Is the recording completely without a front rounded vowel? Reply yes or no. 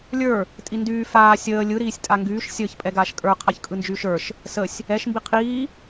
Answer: no